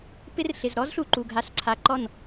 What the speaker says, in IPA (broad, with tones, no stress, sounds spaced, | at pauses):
p ɪ˦ r ɬ ɪ˨ z ɾ ɔ˦ z ɬ u˨ ǃ u˨ ɡʱ a˨ ɬ ǀʰ a˨ ǃ ɔ˦˨ n